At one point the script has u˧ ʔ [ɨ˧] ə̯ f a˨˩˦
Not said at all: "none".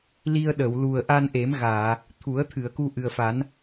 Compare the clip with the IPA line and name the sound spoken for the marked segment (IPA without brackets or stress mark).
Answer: ɨ˨˩